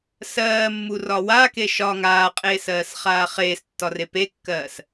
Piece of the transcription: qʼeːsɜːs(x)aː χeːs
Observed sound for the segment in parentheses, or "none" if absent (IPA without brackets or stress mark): χ